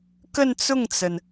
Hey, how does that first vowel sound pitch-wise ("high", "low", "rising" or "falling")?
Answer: falling